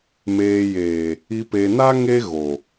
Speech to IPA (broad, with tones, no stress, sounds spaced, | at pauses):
m eː˨ j eː˨ | i˨ p e˨ n a˦ ŋ e˦ ɣ o˨